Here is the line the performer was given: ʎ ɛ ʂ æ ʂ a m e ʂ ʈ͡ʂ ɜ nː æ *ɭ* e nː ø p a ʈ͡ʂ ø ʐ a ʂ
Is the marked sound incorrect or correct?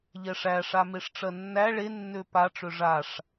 correct